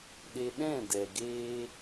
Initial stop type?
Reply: implosive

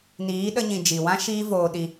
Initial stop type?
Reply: implosive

